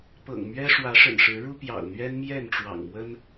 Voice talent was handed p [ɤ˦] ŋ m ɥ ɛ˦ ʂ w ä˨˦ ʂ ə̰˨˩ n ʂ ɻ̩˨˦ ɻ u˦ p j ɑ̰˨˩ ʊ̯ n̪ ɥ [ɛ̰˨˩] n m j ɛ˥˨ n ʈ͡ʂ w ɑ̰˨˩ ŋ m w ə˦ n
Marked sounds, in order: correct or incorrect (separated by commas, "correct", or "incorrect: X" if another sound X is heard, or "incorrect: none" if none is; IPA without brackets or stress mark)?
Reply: incorrect: ɤ̰˨˩, incorrect: ɛ˦